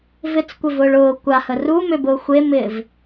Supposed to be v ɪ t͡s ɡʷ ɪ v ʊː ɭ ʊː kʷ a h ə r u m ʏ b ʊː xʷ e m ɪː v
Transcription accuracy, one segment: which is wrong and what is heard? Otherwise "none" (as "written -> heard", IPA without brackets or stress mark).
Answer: ɡʷ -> kʷ